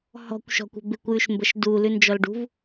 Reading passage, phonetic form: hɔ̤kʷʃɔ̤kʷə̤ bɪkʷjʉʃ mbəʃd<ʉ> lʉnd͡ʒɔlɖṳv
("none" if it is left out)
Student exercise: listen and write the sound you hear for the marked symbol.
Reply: u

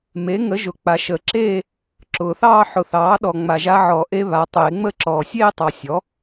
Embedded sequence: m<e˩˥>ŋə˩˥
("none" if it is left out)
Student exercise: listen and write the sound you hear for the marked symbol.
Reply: e˩˥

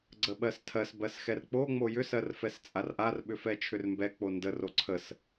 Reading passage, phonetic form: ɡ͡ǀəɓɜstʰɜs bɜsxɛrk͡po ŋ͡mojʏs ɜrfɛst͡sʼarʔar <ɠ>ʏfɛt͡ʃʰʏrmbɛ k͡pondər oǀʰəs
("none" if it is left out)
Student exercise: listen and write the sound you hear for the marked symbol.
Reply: ɓ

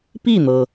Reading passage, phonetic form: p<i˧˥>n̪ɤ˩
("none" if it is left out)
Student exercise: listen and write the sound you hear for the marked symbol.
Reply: i˥˩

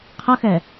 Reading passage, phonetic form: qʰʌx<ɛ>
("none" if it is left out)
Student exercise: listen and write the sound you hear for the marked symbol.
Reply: ɛ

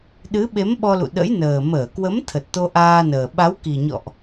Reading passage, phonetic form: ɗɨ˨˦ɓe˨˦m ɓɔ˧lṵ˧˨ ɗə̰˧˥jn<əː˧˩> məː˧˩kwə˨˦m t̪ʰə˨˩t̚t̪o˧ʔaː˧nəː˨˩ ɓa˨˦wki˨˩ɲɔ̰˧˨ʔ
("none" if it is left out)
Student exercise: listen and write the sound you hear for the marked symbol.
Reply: əː˨˩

